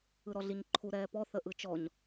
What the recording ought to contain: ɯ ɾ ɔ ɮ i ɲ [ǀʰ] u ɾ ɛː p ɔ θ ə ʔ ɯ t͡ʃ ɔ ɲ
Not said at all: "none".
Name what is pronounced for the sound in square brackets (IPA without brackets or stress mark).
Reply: ǃʰ